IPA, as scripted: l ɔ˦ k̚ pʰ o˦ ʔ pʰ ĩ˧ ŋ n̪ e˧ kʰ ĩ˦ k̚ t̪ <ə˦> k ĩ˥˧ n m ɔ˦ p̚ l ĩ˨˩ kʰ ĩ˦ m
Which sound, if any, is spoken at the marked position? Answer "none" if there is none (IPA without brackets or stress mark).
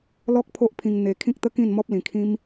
ə˦